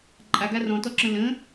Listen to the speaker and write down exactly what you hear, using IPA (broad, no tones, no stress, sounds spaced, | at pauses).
ǃʼ a ɡ a r ɔ̃ t ɔ ǁ ə̃ l ə̃